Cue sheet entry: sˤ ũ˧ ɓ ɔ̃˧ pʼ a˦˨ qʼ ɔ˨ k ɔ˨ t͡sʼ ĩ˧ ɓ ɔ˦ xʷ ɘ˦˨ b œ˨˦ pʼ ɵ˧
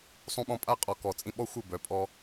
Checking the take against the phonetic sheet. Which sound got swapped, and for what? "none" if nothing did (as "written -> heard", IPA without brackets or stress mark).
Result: ɵ˧ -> ɔ˧